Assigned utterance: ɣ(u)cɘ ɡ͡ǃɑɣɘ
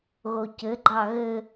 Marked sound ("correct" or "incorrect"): incorrect